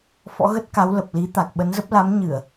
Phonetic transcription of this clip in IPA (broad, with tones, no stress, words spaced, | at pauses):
fɔ̰˧˥ɣə˦˥t̚ka˨˦w lə˨˩p̚li˨˦ t̪a˨˩k̚ ɓə˨˦nzə˦˥p̚ la˨˦mɲɨ˧˩˨ə̯